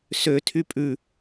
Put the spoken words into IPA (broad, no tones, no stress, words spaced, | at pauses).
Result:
sø tʰypʼʉ